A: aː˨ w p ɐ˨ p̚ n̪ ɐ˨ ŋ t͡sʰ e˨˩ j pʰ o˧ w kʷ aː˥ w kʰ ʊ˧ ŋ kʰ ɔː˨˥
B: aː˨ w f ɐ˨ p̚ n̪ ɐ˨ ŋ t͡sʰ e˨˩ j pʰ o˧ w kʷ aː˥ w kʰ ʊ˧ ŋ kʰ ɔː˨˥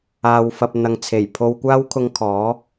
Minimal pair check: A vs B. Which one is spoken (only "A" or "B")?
B